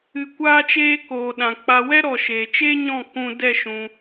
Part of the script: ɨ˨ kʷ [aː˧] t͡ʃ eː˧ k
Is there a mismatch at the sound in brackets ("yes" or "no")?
no